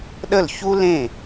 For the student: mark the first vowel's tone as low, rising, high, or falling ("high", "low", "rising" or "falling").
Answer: falling